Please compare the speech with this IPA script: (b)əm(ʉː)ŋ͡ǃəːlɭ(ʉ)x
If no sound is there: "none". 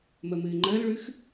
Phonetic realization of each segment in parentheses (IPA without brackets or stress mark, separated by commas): m, ɨː, ʉ